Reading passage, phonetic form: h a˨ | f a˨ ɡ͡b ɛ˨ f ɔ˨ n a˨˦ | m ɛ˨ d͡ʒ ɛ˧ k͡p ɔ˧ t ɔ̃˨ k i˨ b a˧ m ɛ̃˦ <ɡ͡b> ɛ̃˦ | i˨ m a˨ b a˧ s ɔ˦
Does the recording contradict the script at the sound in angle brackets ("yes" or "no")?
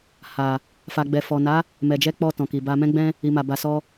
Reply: no